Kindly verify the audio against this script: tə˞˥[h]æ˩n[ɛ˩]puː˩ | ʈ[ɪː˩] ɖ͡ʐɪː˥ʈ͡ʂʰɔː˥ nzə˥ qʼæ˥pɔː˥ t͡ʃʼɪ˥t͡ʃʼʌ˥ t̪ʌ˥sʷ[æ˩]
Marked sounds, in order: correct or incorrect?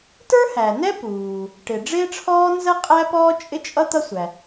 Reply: correct, incorrect, incorrect, correct

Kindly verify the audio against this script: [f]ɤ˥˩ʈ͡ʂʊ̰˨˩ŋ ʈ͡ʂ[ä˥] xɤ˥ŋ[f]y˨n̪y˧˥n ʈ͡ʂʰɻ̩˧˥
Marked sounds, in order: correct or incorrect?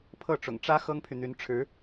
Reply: incorrect, correct, incorrect

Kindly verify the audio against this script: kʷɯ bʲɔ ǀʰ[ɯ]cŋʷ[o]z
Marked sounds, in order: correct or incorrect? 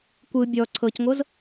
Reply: incorrect, incorrect

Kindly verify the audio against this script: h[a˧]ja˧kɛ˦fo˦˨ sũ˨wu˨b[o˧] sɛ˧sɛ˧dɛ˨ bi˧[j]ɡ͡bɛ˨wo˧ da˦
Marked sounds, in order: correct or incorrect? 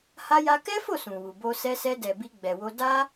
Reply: correct, correct, incorrect

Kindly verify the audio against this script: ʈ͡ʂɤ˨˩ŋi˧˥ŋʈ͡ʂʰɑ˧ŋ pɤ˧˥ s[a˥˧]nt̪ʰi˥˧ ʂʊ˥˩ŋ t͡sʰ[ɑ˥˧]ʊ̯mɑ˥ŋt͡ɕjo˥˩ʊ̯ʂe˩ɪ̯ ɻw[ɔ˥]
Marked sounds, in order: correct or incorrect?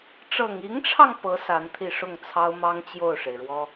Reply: incorrect, incorrect, correct

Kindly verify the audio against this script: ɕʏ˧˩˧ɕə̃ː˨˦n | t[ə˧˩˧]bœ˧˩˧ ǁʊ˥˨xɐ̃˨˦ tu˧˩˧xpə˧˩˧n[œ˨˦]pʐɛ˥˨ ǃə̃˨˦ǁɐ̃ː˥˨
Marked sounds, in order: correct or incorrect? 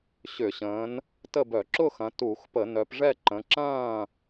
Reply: incorrect, correct

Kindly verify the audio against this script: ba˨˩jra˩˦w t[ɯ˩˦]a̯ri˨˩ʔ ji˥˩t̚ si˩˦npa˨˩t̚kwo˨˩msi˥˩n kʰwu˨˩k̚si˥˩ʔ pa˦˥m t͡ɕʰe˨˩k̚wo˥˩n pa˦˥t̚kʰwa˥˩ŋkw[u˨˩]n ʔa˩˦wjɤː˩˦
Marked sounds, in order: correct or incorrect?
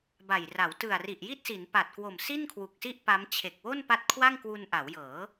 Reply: incorrect, incorrect

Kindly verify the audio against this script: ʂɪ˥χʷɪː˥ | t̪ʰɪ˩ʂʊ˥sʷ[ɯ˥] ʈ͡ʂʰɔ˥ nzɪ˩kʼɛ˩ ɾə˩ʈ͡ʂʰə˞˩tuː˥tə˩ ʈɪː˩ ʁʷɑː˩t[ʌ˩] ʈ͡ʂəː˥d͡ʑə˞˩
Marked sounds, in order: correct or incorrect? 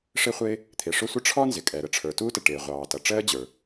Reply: incorrect, correct

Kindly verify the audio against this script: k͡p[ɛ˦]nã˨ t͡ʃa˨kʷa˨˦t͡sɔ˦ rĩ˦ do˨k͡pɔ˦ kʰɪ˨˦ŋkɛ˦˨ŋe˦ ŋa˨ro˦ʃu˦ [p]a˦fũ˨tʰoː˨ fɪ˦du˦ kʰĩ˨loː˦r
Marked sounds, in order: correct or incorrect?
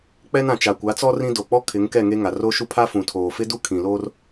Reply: correct, incorrect

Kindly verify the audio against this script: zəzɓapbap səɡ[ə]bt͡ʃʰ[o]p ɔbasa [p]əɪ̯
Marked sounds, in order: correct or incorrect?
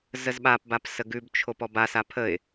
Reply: incorrect, correct, incorrect

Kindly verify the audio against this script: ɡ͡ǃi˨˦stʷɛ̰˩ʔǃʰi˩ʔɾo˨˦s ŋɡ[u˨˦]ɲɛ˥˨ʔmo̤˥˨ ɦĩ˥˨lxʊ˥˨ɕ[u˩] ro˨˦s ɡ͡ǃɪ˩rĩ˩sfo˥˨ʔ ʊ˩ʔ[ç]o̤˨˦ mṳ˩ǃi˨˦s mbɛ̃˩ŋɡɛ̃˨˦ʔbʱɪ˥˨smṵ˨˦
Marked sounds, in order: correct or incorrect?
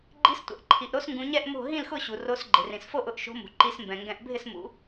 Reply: incorrect, correct, incorrect

